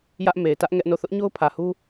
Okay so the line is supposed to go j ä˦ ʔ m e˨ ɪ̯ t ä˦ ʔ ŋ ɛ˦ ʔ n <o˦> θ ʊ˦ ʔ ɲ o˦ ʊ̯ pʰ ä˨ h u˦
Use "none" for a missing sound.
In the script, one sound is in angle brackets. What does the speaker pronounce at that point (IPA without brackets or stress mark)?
o˦˨